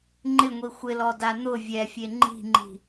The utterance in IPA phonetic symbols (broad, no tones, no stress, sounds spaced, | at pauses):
ŋ͡ǃ ɪ ŋʷ i xʷ ɪ l ɔ d a n̪ ʊ vʲ ɛ fʲ e ŋ͡ǃ i̤ ŋ͡ǃ i̤